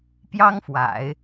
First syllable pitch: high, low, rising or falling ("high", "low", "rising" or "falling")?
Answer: high